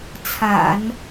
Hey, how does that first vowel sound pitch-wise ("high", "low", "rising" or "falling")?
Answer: low